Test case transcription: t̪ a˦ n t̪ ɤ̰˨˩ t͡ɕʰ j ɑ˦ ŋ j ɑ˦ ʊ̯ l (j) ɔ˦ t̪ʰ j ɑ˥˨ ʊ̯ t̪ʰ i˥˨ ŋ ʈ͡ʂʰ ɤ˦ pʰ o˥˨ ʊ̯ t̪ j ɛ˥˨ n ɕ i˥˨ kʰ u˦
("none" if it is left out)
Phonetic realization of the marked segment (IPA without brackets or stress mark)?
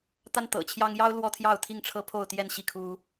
w